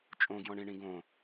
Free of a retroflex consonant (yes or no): no